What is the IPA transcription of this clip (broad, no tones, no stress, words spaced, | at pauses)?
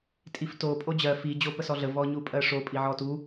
tʼifto pʼod͡ʑɜ fi d͡ʑopəsɔɮə vɔɲupʼɜʂo pʼiʕɔtu